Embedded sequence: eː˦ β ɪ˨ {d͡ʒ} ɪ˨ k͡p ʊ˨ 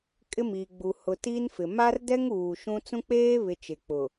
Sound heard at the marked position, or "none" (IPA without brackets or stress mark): t͡ʃ